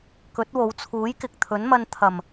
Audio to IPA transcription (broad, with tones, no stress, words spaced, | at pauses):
kɵ˨˥t̚wo˨˧wt͡sʰuː˨˥jkɪ˨k̚ t̪ʰɵ˨˥nmɐ˧nt̪ʰɐ˨˩m